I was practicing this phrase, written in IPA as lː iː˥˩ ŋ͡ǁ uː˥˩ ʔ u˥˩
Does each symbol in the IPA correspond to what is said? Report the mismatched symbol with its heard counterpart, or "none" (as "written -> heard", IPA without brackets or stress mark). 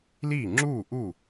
lː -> l